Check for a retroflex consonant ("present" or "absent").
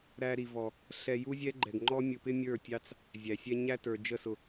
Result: absent